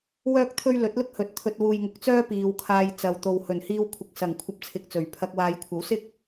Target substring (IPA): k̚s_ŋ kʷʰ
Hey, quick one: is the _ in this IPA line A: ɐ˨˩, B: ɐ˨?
A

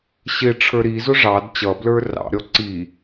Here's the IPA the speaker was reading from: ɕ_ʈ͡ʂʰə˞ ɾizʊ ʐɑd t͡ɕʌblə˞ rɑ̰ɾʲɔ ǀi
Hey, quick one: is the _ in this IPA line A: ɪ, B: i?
A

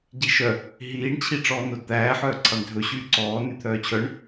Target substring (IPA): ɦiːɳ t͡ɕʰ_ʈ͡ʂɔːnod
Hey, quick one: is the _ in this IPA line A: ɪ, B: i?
B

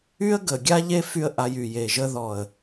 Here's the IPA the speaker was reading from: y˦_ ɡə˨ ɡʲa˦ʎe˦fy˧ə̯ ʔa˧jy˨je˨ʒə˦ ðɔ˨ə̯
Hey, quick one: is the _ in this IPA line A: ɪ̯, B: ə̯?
B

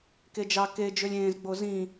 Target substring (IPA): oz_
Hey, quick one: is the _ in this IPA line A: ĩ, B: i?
A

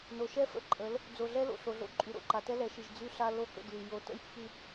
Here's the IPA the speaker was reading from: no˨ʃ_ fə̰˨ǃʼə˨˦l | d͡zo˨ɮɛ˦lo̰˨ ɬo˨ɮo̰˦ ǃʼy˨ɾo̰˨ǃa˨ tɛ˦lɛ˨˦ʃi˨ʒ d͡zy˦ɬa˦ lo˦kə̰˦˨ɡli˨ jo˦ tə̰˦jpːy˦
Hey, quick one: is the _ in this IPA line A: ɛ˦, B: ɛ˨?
A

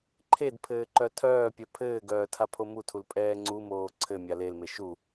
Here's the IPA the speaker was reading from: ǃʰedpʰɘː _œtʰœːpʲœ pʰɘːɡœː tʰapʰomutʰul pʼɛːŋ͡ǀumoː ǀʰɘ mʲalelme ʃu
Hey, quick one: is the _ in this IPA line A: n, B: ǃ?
B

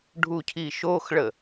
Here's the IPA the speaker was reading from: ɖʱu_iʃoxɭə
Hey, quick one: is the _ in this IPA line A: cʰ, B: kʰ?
A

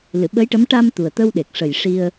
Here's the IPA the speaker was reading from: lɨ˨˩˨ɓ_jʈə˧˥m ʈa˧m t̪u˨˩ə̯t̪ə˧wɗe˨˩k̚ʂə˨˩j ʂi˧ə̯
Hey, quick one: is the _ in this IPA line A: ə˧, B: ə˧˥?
B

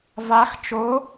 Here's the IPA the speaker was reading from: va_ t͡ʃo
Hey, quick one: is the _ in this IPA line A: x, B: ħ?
A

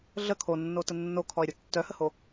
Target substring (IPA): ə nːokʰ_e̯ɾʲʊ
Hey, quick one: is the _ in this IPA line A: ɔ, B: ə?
A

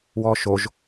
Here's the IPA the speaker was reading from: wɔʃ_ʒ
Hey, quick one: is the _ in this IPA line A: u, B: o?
B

